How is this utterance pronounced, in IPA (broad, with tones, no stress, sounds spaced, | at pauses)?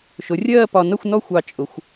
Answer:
ʃ ʊ˩˧ rʲ ɜː˦˨ p ɒ˨˩ n ʌ˦˨ xʷ n ɔ˦˨ xʷ ɑ˨˩ t͡ʃʼ ʊ˩˧ xʷ